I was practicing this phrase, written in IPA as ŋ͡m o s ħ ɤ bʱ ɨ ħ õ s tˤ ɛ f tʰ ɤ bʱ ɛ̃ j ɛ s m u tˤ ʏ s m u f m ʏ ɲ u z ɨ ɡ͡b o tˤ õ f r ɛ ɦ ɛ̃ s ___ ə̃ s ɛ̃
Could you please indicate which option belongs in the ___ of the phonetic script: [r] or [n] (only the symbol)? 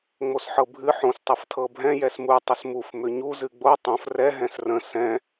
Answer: r